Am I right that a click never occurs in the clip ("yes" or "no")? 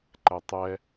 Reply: no